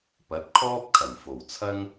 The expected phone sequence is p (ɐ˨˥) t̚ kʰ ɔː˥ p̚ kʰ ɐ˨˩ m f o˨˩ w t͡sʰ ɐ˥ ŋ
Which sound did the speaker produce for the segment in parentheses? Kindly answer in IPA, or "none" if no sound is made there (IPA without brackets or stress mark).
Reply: ɐ˨˥